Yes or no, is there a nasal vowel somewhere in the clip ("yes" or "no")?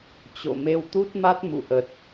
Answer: no